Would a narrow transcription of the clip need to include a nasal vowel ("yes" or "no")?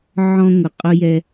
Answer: yes